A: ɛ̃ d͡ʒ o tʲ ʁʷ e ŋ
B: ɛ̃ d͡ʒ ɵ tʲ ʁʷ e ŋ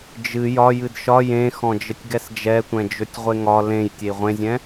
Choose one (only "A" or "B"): B